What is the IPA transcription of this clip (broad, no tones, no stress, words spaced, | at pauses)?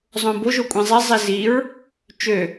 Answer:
zˤõbo ʒokʷʼĩzˤi zˤiziɹ | t͡ʃø